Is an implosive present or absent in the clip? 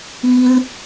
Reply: absent